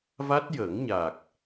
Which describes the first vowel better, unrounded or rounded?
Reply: unrounded